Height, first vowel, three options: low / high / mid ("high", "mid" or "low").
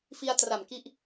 high